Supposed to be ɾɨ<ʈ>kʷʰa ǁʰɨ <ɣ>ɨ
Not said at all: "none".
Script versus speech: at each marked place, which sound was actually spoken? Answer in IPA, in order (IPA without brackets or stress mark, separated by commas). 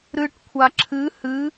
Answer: ʈ, h